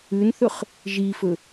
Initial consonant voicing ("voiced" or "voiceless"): voiced